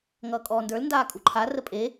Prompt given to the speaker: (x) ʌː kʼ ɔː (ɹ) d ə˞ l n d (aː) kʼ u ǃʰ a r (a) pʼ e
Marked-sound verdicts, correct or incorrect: incorrect: ŋ, incorrect: n, correct, incorrect: ə

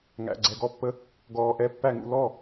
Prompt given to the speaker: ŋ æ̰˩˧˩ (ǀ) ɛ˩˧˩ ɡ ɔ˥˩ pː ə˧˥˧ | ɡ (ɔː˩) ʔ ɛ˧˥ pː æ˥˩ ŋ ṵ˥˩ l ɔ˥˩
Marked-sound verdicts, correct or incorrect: incorrect: ɡ͡ǀ, correct

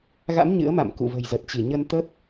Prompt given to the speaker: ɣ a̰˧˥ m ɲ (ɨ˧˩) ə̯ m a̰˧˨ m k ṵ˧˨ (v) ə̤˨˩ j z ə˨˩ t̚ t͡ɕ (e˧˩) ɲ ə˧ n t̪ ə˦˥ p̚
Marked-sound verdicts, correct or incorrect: incorrect: ɨ̰˧˥, correct, incorrect: i˧˩

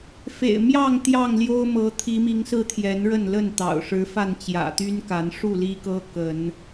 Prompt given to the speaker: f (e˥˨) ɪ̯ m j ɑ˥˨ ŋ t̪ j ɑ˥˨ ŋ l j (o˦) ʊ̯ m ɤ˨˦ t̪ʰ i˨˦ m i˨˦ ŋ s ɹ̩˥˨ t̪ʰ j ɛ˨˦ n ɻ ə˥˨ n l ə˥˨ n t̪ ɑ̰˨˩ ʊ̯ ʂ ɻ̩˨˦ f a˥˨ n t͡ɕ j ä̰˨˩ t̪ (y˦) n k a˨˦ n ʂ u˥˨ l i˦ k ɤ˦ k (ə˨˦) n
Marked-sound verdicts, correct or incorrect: incorrect: ḛ˨˩, correct, correct, correct

